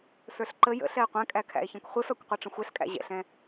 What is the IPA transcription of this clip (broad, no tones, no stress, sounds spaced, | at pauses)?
s ə˞ ɬ ǃ ə j ə̰ ɬ ɛ e̯ qʷ ɛ̃ kʼ æ kʰ æ̰ e̯ ç ɛ̃ kʷ χʷ ɪ f æ kʷ qʷ ɛ ʈ͡ʂ ə̃ xʷ ɛ ɬ kʼ æ̰ ʑ ɛ̰ ɬ ɛ̃